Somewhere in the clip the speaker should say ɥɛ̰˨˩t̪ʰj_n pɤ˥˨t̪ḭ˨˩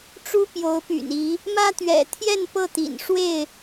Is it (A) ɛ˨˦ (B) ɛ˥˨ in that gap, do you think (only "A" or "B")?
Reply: B